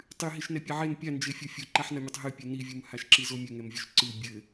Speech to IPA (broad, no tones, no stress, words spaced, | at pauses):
tˤɨ ɦiʃnɛpʲɛʕen pʲand͡ʒefʲo fʲoǃaħnɐmʲɐtˤ ɦɨpʲɘ nivʲum haʃǁizomʲɘ ŋɛmvʲoʃǀɨ bʲɘ